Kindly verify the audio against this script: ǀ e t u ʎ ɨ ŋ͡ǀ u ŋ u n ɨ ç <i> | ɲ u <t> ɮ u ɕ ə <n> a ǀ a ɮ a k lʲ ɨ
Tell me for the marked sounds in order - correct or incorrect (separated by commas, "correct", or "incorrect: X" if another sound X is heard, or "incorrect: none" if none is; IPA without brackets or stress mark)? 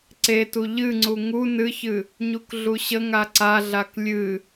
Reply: incorrect: ɨ, incorrect: k, incorrect: ŋ